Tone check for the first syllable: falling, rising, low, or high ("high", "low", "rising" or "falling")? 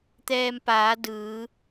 low